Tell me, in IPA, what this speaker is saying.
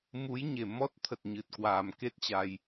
mu˨˦jɲe˧˩mɔ˦˥t̚ t̪ʰə˨˩t̚ ɲɨ˨˩t̚kwaː˨˩mke˦˥t̚t͡ɕa˧j

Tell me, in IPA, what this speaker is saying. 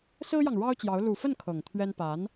sɹ̩˥jɑ˨ŋ ɻɑ˥ʊ̯t͡ɕjɑ˧˥ʊ̯ lu˨˩fə˥˩n kʰɤ˨˩ŋt̪ʰɥɛ˥n pa˧˥n

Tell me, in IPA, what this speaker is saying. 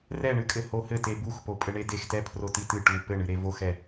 rɛɳɨkʼɘ hohɘ tebuxpo pʼɘɳedextɛ pʰrotitɨ ʈu pɘɳɨɾe voxɛ

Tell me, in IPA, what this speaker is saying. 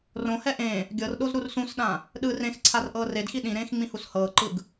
rõhɛ ʔẽ | ɡʲɤrɗoz ɾursũsɗã | ɗɯ rẽxǀʰar ʔɤːredxi ɗĩɾẽːx ŋ͡mĩhushɤːǃɯɡ

